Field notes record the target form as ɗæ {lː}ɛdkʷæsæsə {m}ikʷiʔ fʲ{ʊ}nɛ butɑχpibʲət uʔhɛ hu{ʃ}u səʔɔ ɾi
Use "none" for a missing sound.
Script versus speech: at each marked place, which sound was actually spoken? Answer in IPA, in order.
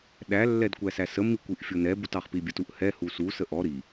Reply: lː, m, ʊ, s

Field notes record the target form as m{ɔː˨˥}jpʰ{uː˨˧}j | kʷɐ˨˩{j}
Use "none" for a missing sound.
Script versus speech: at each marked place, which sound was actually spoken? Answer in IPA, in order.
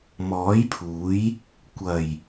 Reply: ɔː˨˥, uː˨˥, j

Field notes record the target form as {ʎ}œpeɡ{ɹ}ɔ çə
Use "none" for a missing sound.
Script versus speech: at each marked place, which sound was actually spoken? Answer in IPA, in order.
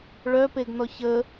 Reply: ɭ, n

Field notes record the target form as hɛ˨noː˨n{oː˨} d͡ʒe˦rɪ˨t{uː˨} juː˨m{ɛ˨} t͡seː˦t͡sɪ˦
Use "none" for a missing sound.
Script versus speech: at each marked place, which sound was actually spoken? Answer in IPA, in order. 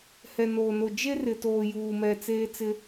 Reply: o˨, oː˨, ɛ˨

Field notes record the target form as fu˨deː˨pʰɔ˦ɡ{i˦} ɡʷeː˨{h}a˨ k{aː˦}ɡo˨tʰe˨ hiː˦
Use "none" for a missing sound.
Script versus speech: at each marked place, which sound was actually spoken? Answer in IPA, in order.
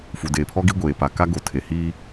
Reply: i˦, p, a˦

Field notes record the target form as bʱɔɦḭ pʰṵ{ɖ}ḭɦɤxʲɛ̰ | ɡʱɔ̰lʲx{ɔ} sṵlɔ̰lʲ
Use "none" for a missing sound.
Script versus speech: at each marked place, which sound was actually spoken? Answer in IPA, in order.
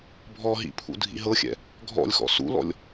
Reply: dʱ, ɔ̰

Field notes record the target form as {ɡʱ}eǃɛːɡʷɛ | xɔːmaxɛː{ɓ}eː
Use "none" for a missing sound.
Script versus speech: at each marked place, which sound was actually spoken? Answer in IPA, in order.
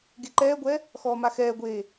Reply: ɡ, ɡʷ

